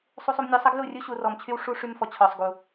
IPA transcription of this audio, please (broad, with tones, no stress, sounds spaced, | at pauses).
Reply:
sˤ u˦ sˤ u˦ m nʲ ɔ˧ sˤ ə˦ ɡ l u˦˨ rʲ u˦ ɕ u˧ r ɔ˧ m t͡ɕʰ y˦ w ʂ u˦ ʂ y˧ m f ɔ˨ t͡ɕʰ ɔ˨ sˤ ɡ u˨